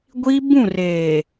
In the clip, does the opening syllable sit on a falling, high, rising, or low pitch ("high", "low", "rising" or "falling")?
high